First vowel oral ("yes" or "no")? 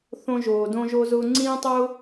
no